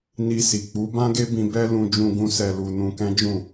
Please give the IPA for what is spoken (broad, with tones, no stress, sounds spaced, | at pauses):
n i˧ s i˨ k͡p u˨˦ b ã˦ ɡ e˦ b ĩ˧ b ɛ˦ l ũ˧ d͡ʒ ũ˧ ɡ ũ˧ s ɛ˨ l u˨ n ũ˧ k ɛ̃˦ d͡ʒ ũ˦˨